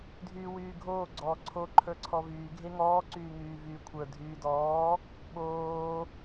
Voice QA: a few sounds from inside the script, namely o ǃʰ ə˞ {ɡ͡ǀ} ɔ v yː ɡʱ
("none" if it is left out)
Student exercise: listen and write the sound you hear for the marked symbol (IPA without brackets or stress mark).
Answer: ǀʰ